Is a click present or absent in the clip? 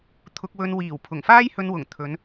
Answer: absent